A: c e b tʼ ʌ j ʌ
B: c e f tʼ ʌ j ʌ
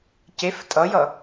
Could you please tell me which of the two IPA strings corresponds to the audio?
B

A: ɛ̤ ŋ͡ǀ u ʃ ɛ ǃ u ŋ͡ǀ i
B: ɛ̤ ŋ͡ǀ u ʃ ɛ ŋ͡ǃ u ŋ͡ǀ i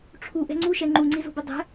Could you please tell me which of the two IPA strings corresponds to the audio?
B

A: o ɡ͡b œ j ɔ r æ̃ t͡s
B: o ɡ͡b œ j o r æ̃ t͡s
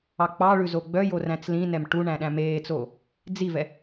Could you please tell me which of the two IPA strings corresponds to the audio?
B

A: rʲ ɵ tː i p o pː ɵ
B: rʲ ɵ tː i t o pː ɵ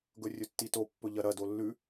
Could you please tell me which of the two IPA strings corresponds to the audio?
B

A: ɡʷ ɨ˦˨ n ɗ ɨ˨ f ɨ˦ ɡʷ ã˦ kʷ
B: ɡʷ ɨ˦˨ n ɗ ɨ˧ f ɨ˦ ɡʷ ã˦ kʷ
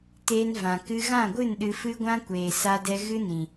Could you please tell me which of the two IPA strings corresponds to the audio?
B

